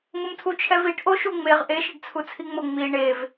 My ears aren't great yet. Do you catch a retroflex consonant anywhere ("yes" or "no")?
yes